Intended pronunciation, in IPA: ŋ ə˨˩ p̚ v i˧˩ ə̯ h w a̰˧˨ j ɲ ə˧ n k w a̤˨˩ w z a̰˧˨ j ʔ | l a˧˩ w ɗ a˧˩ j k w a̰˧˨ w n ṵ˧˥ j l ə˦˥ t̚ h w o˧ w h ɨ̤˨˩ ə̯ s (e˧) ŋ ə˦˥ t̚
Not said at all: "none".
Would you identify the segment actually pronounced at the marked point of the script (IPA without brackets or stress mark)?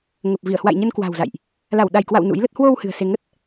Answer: e˧